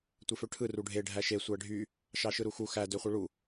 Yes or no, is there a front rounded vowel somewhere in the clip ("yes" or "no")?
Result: yes